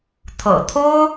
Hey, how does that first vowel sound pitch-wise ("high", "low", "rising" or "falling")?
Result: low